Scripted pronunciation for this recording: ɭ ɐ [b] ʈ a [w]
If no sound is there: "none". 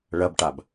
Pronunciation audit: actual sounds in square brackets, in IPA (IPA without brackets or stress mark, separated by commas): b, b